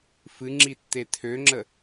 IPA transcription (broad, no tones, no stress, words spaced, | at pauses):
fɨŋ͡ǁi tːetʰøŋ͡ǁə